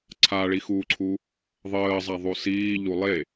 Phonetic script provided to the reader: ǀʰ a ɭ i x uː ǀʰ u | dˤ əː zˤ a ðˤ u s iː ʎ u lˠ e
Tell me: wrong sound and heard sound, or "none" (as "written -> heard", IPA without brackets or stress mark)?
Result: dˤ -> ðˤ